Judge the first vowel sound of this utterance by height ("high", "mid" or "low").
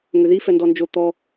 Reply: high